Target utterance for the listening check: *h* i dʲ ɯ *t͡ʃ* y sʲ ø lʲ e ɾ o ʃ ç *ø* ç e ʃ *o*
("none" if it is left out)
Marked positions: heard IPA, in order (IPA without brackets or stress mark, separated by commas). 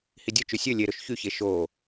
h, t͡ʃ, y, o